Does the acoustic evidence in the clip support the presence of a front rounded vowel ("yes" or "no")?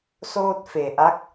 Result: no